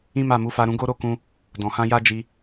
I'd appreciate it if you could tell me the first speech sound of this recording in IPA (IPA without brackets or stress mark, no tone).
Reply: ĩ